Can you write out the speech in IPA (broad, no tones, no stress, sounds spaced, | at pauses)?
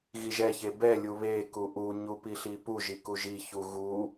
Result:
ɣ i ʒ ɛ ç e b ɛ lʲ u β e k u ʔ u ɲ u p i ɬ i p u ʒ i k u ʒ i ç u ɣ u